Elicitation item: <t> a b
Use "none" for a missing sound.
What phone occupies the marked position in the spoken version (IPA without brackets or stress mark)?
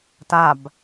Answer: t